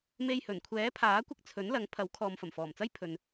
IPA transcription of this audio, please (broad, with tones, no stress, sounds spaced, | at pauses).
m e˧ j h ɵ˨˩ n kʷʰ ɛː˨˥ pʰ aː˨˥ kʷ ɪ˧ k̚ t͡sʰ ɵ˨˥ n l ɐ˨˥ ŋ pʰ ɐ˨˥ w kʰ ɔː˨ m f ɐ˨˩ m f ɔː˨˩ m t͡s ɐ˥ j pʰ ɵ˨ n